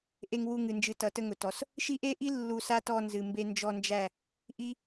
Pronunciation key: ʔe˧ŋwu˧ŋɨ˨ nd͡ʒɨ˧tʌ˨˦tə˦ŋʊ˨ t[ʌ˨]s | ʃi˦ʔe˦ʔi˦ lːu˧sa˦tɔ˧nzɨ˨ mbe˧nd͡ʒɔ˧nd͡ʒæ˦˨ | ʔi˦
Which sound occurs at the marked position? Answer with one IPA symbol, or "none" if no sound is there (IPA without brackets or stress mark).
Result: ɔ˨